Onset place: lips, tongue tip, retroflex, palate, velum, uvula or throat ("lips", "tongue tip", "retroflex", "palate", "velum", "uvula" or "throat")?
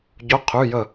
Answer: palate